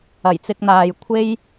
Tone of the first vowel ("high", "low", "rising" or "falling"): low